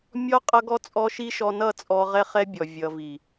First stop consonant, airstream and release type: ejective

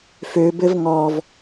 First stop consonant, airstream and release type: plain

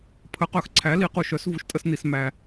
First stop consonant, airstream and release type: aspirated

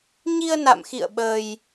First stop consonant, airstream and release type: implosive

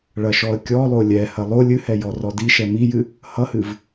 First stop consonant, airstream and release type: plain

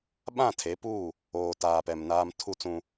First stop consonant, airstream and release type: implosive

